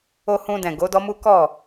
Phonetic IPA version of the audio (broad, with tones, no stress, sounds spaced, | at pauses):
o˧ h ũ˧ d ɛ̃˨ ɡ o˨˦ d ɔ˦ m u˦ k ɔ˦˨